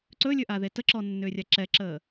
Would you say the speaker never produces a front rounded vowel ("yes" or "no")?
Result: no